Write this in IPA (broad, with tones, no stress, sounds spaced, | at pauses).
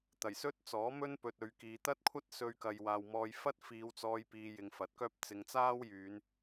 t̪ ɐ˨˩ j s ɵ˥ t̚ t͡s ɔː˨˥ m ɵ˥ n p ɵ˧ t̚ ɵ˨˧ ɥ k iː˨˧ t̪ ɐ˥ t̚ kʷʰ ɐ˥ t̚ s ɵ˧ ɥ k ɐ˨ j w aː˨ w m ɔː˧ j f ɐ˥ t̚ f iː˨˧ w t͡s ɔː˧ j p iː˧ j ɪ˨˧ ŋ f ɐ˨˥ t̚ k œː˥ p̚ t͡s ɪ˨˧ ŋ t͡s aː˥ w j yː˨˧ n